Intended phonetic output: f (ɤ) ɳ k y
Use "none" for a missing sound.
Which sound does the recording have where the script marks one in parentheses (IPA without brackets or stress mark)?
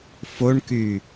o